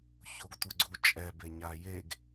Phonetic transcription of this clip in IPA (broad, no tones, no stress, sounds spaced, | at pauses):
ç o ɡ tʷ ɯ ɡ͡ǀ u t͡ʃʼ ɛ b e ɲ a j e ɡ